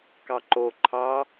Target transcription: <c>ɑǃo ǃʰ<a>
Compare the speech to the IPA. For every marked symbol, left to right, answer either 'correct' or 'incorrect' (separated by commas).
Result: incorrect, incorrect